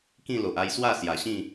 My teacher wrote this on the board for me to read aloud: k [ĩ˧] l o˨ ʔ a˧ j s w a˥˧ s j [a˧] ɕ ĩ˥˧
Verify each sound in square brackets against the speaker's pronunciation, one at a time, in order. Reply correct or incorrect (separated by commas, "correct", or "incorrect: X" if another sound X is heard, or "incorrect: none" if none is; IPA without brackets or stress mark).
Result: incorrect: ĩ˥˧, incorrect: a˨˩